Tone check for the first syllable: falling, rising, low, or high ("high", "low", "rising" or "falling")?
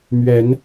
rising